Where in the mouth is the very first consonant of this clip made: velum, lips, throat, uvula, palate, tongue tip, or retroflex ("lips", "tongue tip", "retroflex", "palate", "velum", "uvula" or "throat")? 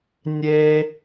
tongue tip